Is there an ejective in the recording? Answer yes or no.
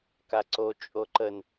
yes